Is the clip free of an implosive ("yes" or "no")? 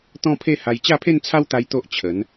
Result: yes